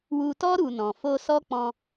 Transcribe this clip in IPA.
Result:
w u˧ t ɔ˦ ɾ u˧ n ɔ̃˨ f o˧ s ɔ˦ k͡p ɔ̃˧

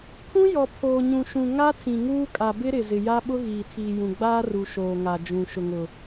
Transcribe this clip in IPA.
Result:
pʰ ũ˦ j ɔ˨ pʰ oː˨ ɲ ũ˨ ʃ ũ˨ ŋ a˦ tʰ ĩ˨ ŋ uː˦ kʼ a˨ b ɪ˦ ɾ ɪ˨ z ɪ˨ j a˦ ɓ ʊ˦ ɣ iː˨ tʰ iː˨ j ũ˨ ɡ͡b aː˦ r u˨ ʃ oː˨ ŋ a˨ d͡ʒ ũ˨ ʃ ʊ˨ ŋ ʊ˨

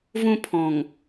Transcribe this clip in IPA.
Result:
v ũ˦ pʰ ɔ̃˨ ŋ

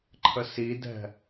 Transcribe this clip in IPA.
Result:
ǃʰ ə s i d ɛ̤

